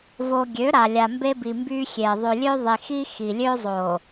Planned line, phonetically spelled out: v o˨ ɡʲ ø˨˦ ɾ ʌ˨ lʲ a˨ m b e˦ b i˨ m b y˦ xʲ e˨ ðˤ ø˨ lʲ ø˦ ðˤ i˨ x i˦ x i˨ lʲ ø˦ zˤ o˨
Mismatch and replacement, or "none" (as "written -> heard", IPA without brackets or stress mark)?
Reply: ʌ˨ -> a˨